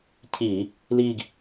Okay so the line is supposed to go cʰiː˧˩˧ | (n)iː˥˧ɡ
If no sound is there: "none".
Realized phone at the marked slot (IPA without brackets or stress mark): l